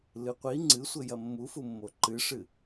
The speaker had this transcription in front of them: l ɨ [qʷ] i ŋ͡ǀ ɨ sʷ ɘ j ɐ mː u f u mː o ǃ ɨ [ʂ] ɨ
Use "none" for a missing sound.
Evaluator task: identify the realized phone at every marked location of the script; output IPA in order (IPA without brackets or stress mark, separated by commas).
qʷ, ʂ